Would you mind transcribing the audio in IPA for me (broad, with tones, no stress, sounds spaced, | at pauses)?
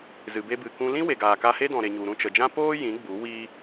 z ɨ˨ b e˧ b ɨ˨ k ũ˧ l ĩ˦ w e˨ ɡ aː˨ k a˧ h e˦ d ɔ̃˨ ɾ e˨ ɲ u˨ ɾ ũ˦˨ t͡ʃ ə˨ d͡ʒ ã˦ p oː˦ j ĩ˨˦ ɡ͡b u˨˦ w i˦